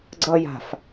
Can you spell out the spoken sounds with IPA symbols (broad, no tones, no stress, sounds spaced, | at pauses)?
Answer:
ɡ͡ǀ ʌ j a̤ f